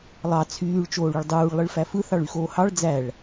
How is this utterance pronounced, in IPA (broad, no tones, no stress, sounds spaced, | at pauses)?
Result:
lˠ ɑ t͡sʰ yː ɭ t͡ʃ oː ɭ y ɭ dˤ uː ɭ lˠ ɯ ɭ f æ f ɯ θ ɑ ɭ y x oː h ɑ ɭ d͡z æ ɭ